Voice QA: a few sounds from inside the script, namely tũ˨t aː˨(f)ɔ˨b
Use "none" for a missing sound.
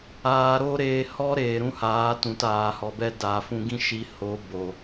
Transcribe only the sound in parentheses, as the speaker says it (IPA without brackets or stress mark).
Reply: h